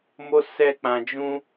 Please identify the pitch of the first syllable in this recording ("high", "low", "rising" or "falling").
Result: high